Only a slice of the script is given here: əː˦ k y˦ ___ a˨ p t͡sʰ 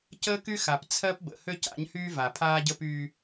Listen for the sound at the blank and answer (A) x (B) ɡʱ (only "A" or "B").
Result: A